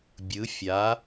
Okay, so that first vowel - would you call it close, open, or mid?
close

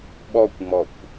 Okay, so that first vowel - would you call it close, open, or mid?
mid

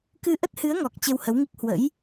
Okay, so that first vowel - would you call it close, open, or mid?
close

